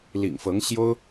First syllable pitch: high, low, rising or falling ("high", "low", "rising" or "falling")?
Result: low